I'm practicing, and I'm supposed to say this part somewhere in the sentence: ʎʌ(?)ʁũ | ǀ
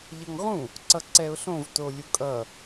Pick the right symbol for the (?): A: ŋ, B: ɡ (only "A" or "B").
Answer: A